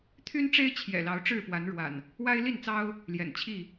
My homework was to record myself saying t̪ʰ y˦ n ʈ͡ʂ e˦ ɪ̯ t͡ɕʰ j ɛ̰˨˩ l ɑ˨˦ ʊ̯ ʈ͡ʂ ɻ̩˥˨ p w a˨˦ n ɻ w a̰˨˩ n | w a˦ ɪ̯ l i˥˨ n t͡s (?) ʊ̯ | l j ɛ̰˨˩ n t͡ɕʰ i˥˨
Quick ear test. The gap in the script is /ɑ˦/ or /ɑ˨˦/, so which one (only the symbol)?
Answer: ɑ˦